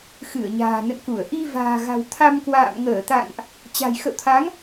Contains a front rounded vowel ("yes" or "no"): no